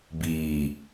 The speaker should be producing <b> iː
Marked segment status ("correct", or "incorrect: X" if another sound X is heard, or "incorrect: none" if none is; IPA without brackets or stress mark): correct